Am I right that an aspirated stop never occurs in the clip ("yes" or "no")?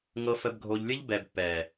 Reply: yes